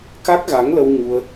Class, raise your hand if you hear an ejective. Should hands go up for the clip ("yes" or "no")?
no